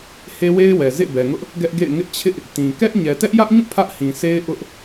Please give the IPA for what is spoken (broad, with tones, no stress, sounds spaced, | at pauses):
h e˦ w e˦ ɪ̯ w ɛ˨ z ḛ˦˨ b ɛ˨ ŋ ʊ˦ ʔ | ɡ ɛ˦ ʔ ɡ ḛ˦˨ ɪ̯ ŋ ɪ˦ ʔ t͡ɕʰ ɪ˦ ʔ | t ĩ˨ k ɛ˦ ʔ ɲ ɛ˨ t ɛ˦ ʔ j ä˦ ʔ ɲ ũ˦˨ pʰ ä˦ ʔ h ĩ˨ sʰ e˦ ɪ̯ ʔ ʊ˦ ʔ